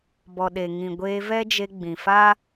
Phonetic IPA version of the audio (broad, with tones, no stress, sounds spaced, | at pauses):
b ɔ˨ ɗ e˨ ŋ ĩ˨ ɡʷ eː˧ v ɛ˦ d͡ʒ e˧ ɡ͡b ĩ˨ f aː˦